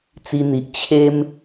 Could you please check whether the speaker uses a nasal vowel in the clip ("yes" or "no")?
no